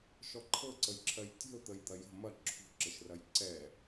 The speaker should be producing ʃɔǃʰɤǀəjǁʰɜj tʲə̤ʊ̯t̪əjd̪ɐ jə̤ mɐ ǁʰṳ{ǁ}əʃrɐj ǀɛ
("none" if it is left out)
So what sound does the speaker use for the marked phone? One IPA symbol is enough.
ǁ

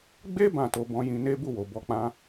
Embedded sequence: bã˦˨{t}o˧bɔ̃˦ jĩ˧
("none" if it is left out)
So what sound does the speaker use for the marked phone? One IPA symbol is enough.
t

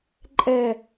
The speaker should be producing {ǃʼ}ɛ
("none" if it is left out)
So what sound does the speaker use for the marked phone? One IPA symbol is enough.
ǃʼ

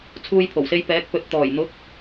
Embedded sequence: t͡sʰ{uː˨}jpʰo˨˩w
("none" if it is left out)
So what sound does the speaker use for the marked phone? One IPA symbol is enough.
uː˧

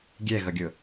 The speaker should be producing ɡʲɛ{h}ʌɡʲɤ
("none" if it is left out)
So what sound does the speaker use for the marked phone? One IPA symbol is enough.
ɣ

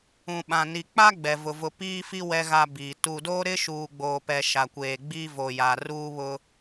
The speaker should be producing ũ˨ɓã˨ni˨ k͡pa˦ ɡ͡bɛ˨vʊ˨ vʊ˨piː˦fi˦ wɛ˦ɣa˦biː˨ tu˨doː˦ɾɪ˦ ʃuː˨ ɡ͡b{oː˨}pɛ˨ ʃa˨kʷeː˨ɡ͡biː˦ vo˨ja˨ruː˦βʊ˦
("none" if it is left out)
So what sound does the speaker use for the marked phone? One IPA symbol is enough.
oː˨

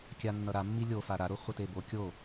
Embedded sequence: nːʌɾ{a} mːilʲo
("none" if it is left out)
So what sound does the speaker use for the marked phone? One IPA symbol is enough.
a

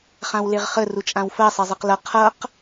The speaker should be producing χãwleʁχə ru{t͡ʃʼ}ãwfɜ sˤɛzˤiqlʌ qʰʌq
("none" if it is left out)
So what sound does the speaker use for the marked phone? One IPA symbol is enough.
t͡ʃʼ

